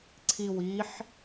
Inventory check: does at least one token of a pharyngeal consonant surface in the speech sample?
yes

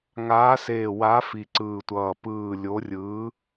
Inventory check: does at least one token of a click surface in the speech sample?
yes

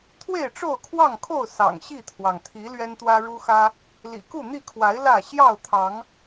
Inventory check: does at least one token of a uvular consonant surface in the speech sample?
no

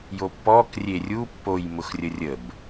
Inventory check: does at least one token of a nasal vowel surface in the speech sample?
no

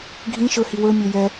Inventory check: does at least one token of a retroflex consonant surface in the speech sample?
no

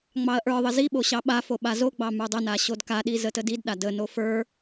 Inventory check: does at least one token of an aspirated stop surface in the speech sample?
no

